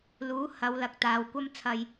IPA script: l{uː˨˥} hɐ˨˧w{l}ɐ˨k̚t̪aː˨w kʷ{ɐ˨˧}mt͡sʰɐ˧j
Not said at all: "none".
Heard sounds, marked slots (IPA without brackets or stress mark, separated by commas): uː˨˥, l, ɐ˥